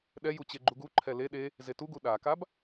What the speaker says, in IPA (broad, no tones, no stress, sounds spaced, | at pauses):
ɗ ɛ j u t͡ɕ e ɡ͡ǃ u ɡ u ǃʰ ɛ l e ɗ e | z e t u ɡ u ɗ a k a b